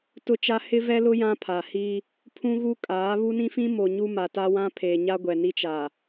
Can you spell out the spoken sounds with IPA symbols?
t ʊ˦ t͡ʃ a˦ h ɪ˦ v ɛ˦ l ʊ˦ j ã˦ pʰ a˨ h i˦ | pʰ ũ˦ ɣ u˦ kʼ aː˨˦ β u˦ n ĩ˦ f ĩ˦ m o˨ ɲ u˦ m a˨ t a˦ w ã˦ pʰ eː˨ ɲ a˦ ɡʷ ɛ˨ n i˦ t͡ʃ a˨

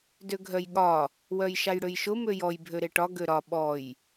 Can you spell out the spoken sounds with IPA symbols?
d ø ɡʱ œ j ɠ ɒ | w œ j ʃ a j ɽ ø j ʃ ʊ m ø j ɔ j bʱ ø ɾ e ʈ ɒ ɡ ø ɾ ɒ ɓ ɔ j

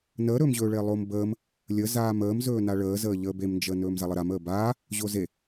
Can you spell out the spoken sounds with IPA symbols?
n əː ɾ ɵː m ʑ ɵː ɭ e lˠ o m b əː m | lʲ ə z aː m əː m z ɵː n a ɭ əː z əː ʎ əː b e m n d͡ʒ əː n ɵː m z a lˠ ə ɾ a m əː b aː | ʑ o z e

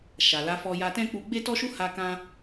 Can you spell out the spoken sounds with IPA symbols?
ʃ a˨ l a˨˦ f ɔ˧ j a˧ t ɛ̃˦ k͡p u˧ ɡ͡b e˦ t ɔ˦ ʃ u˦ h a˧ k ã˧

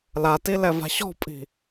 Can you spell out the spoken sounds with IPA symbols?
l a t i l ɛ v a̤ ɕ ɔ̤ pʼ i̤

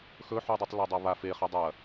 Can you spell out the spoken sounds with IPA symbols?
x ɵ ħ u dˤ u tˤ l a dˤ a β a f e χ e dˤ ɐ

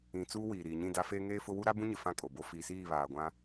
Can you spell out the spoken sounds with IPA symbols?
ĩ˨ t͡s uː˦ w iː˨ ɾ iː˨ ɲ ĩ˦˨ d a˦ f eː˦ ŋ eː˦ f ʊ˦ w u˦ ɾ a˦ b ũ˦ ɲ ɪ˨ f ã˦ kʼ o˨ b o˦ f i˨ s iː˦˨ β aː˨ ɡʷ ã˦

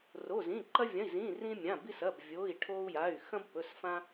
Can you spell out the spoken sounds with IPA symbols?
r o˩˧˩ z ĩ˩˧˩ ǃ ɐ˧ vʲ ɐ̃˩˧˩ i̯ z ĩː˩˧˩ r ĩ˧ mʲ ã˩˧˩ b i˧ s ɐ˩˧˩ b vʲ o˩˧˩ i̯ ʈʰ oː˧ u̯ j a˩˧˩ y̯ x ɐ̃˧ b p ɵ˩˧˩ s f ã˧

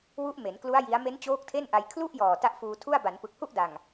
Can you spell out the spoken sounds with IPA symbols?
w u˦˥ ʔ m e˩˦ n k l u˦˥ a̯ j i˦˥ a̯ m e˦˥ n t͡ɕ oː˦˥ k̚ tʰ e˥˩ n ʔ a˧ j kʰ l u˥˩ ʔ j ɔː˨˩ t a˦˥ ʔ f uː˧ tʰ u˥˩ a̯ b a˩˦ n p ɯ˨˩ k̚ h u˥˩ ʔ d a˨˩ ŋ

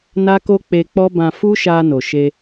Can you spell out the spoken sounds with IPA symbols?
n a˦ k o˦ k͡p e˧ k͡p ɔ˦ b ã˧ f u˦ ʃ a˧ n o˨ ʃ e˧

